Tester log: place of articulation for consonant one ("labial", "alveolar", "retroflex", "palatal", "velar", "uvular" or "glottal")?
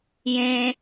palatal